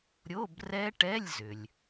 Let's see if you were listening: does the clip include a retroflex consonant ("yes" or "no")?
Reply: yes